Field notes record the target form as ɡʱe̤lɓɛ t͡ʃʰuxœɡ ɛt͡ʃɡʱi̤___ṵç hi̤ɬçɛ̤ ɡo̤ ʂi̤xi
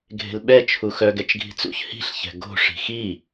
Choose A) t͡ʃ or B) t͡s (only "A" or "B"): B